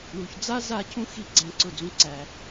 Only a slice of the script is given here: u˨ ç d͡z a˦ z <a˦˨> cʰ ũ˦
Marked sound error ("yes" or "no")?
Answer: no